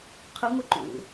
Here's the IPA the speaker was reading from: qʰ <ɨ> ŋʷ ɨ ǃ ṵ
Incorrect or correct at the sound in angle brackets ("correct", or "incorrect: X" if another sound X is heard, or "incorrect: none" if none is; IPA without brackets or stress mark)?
correct